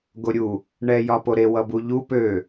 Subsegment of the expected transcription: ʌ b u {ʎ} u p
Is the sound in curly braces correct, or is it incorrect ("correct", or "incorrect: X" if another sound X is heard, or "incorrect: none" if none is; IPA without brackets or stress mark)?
correct